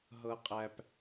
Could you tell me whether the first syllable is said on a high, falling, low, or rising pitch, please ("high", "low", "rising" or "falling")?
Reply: low